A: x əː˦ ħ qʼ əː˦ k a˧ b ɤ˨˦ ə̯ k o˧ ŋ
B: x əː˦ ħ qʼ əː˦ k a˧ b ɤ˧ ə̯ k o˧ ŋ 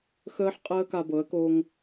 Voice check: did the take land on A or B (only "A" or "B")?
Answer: A